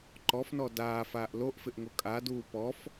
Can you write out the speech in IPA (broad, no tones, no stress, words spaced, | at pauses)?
ǃɔfnɔ daːfaːʔ loʔfɪʔŋo kʼaduː pɔf